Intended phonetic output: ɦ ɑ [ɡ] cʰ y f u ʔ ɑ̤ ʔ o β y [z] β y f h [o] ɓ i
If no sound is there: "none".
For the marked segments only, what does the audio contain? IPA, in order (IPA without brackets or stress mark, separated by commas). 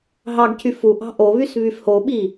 ɡ, s, o